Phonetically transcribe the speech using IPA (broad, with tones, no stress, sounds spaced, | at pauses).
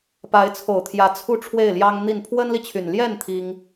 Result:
p a˧˥ ɪ̯ t͡sʰ o˨˩ ʊ̯ t̪ʰ j ä˧˥ t͡sʰ u˥˧ ʈ͡ʂʰ w e˥˩ ɪ̯ l j ɑ˥ ŋ n̪ i˥˩ n pʰ w ə˥ n l i˨ t͡ɕʰ y˨˩ n l j ɛ˥˩ n t̪ʰ i˥ ŋ